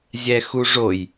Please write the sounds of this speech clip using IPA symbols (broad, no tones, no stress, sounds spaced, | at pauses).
zʲ ɛ x u ʐ o j